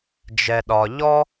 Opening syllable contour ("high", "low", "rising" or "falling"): low